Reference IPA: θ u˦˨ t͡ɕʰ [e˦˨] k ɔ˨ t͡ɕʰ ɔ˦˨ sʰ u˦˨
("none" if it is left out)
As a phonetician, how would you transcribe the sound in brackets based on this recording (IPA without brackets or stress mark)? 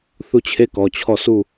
e˦˨